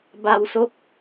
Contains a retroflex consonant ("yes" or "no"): no